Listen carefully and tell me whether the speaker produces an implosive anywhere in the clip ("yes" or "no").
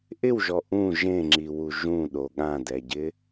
yes